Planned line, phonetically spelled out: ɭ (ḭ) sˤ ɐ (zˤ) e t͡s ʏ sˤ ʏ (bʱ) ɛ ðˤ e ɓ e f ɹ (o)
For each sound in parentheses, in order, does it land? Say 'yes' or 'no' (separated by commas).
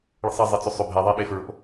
no, yes, yes, no